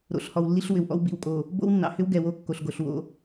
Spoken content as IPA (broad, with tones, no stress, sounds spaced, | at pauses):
ɾ o̰˨ ɬ h ɔ˨ w lː i˦ ɬ w ʏ˨ w ʔ ɔ̰˦ w b ḭ˨ w kʼ o˨ | b o̰˦ w nː ɑ̰˨ h ʏ˦ w ɡ ɛ˨ w o˦ kː o˨ ɬ ɡ o˨ ɬ w o̰˦